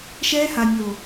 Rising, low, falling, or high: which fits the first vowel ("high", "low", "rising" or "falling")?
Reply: high